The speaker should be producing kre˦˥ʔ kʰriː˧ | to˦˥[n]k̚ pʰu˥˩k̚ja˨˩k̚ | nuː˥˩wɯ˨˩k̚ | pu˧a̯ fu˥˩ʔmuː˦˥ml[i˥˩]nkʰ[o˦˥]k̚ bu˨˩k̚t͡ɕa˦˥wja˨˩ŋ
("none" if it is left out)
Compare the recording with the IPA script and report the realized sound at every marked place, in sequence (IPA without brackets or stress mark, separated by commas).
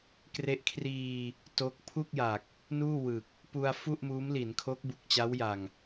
none, i˩˦, o˦˥